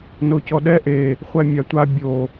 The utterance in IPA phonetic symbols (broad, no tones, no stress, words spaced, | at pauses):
nocɔɗɛ ʔe | χʷɛmʲatʷa bʲo